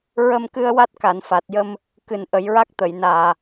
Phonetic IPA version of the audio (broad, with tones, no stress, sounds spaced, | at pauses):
ɹ ə˧ m k ɨ˧ ə̯ w a˦˥ t̚ k a˨˩˨ n f a˨˩ t̚ j ə˧ m | k ɨ˨˩ n ʔ ə˨˩˦ j ɹ a˦˥ k̚ t̪ ə˨˩˨ j n aː˨˩